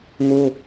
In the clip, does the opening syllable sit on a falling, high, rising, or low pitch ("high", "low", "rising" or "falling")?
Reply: high